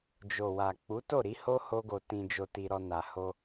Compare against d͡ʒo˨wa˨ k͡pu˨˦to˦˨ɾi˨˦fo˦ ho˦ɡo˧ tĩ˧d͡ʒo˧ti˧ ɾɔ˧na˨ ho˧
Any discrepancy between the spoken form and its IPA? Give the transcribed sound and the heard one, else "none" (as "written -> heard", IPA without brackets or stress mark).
f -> h